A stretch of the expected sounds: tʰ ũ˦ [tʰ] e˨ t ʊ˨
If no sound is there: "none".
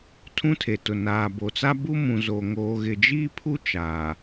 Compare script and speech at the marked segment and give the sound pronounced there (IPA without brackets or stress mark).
tʰ